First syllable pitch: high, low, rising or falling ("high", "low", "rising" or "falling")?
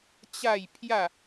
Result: falling